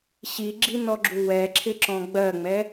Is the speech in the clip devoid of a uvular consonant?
yes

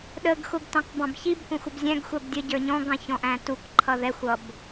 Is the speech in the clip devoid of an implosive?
no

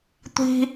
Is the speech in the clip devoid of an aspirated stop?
yes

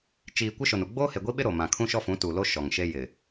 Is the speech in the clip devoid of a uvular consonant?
yes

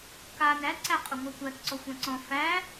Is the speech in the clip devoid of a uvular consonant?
no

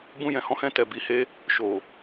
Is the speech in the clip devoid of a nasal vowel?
no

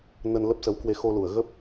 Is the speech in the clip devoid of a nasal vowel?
yes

